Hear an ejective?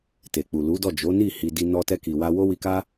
no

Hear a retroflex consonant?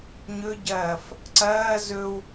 no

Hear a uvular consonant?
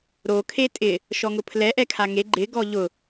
no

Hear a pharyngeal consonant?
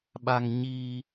no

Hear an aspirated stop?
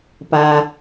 no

